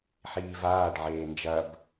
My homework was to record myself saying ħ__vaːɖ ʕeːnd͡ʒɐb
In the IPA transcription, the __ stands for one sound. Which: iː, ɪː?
iː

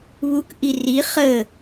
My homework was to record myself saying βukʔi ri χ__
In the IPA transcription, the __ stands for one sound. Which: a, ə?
ə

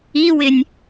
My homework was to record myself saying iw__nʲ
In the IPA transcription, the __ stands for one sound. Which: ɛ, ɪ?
ɪ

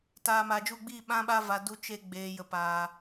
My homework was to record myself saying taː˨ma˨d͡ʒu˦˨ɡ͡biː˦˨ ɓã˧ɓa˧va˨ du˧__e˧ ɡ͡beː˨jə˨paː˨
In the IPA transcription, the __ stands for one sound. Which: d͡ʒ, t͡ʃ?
t͡ʃ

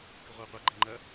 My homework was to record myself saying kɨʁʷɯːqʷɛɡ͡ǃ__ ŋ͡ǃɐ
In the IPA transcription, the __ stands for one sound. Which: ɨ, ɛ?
ɛ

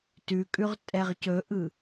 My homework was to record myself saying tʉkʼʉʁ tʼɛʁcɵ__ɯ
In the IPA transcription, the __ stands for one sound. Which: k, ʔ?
ʔ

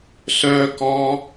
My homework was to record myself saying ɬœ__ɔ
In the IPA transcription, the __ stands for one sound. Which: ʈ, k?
k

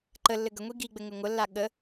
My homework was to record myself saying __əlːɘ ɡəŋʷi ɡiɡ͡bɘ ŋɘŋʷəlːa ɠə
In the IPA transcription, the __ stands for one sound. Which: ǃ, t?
ǃ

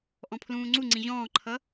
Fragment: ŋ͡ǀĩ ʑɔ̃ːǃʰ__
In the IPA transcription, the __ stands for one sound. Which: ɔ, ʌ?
ʌ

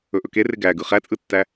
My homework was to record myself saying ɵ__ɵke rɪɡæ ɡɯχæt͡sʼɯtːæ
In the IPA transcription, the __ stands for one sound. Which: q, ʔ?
ʔ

